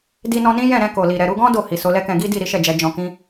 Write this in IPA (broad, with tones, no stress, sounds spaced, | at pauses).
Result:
d i˧ n ɔ̃˧ n ĩ˦ j ɛ̃˦˨ ɾ ɛ̃˧ k o˨ l i˨ ɾ ɛ˨ ɾ u˧ ɡ ɔ̃˦ d o˦˨ h i˨ s o˨˦ l ɛ˦ k ɛ̃˧ ɡ i˦ d i˦˨ ɾ i˨˦ ʃ ɛ˦˨ d͡ʒ ɛ˨˦ d͡ʒ ɔ̃˧ k ĩ˦